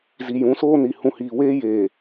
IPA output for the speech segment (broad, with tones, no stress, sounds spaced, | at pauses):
z i˨ j ũ˨˦ s oː˦ n i˨ h ũ˨ h iː˨ w eː˦ j eː˨